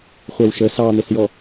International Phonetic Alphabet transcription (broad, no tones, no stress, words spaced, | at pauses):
χʷɛwʃə sɑn̪ɪsjɔ